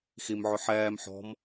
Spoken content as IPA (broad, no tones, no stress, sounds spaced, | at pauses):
x i m ʕ ʊ ħ ɛː m ħ ɔ̤ m